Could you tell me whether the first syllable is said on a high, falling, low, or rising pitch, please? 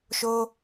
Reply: high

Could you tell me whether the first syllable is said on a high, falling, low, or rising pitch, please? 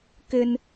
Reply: high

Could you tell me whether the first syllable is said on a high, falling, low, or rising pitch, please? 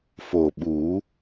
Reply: low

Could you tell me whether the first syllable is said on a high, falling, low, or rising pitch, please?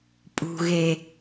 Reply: low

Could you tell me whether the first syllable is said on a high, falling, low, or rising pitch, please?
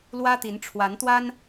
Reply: high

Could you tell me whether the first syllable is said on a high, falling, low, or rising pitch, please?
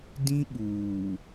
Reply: high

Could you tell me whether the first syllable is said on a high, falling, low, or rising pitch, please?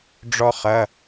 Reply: high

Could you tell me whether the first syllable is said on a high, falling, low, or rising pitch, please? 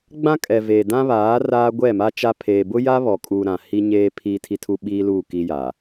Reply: high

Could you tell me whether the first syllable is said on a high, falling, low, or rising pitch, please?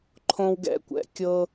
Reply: high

